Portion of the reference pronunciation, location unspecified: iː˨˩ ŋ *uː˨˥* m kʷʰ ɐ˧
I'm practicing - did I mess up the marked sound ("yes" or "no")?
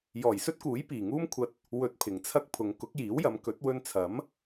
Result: yes